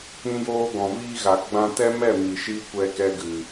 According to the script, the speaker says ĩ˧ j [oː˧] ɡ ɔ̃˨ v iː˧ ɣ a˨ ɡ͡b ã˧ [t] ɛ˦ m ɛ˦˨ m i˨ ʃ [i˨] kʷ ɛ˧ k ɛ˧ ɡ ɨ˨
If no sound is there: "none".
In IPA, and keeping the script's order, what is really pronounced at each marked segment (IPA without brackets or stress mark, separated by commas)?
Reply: oː˧, t, i˧